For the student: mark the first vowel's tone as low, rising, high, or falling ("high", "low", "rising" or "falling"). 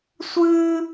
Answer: high